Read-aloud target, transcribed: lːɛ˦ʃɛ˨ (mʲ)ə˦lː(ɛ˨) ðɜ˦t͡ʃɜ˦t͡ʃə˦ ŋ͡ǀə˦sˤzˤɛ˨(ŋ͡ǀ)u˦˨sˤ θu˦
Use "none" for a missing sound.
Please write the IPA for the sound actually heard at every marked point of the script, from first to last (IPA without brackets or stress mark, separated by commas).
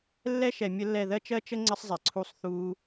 mʲ, ɛ˦˨, ǀʰ